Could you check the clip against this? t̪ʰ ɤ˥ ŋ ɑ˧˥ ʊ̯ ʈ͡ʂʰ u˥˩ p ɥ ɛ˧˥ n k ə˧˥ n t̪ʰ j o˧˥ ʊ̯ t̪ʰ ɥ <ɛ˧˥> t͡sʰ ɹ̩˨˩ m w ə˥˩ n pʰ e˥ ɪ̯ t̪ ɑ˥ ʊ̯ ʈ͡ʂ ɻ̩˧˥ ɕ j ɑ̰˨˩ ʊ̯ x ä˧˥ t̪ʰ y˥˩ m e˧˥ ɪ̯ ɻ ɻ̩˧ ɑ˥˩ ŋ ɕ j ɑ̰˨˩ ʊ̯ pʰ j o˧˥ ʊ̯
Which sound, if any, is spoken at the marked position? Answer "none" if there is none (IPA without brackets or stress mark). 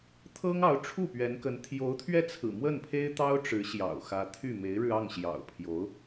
ɛ˥˩